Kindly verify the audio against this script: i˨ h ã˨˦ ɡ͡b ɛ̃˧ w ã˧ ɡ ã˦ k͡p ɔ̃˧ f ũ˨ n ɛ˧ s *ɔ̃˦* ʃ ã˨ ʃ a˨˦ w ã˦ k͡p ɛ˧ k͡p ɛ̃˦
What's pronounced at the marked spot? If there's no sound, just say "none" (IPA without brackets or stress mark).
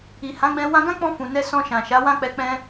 ɔ̃˧